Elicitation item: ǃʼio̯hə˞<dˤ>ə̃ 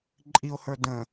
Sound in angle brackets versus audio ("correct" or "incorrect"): incorrect